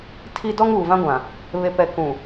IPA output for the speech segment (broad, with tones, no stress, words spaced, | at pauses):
tʰi˦ dɔ˦ŋuː˨vã˦ ɡʷã˨ | βe˨pɛ˨ kũ˨